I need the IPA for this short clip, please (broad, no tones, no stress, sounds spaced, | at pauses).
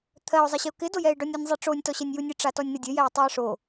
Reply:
t̪ʰ ɜ ʊ̯ zˤ ɪ ɕ ɪ ʊ̯ k ɪ d o j ɛ ɪ̯ ɖ ɔ nʲ ɔ nʲ zˤ i ʈ͡ʂ o nʲ t ɔ ɕ ɛ nʲ j u nʲ ɨ ʈ͡ʂ a t ɔ nʲ n̪ ɘ dʲ ɘ j ɛ ɪ̯ tˤ u ɪ̯ ʂ o